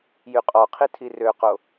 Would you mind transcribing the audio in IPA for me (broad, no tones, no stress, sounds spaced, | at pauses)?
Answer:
j y qʼ ɔ qʰ i tʰ i r ø q o